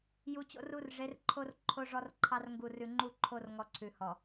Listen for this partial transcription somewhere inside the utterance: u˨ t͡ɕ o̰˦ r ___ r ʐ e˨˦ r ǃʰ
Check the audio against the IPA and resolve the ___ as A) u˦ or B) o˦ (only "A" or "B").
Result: A